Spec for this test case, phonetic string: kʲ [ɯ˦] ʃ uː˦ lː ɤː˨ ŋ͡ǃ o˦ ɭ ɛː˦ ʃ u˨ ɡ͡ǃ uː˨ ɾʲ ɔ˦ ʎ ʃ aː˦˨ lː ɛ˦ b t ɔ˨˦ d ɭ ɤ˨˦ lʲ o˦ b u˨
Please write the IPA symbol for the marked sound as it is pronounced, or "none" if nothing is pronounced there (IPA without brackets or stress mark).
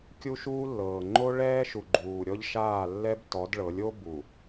u˦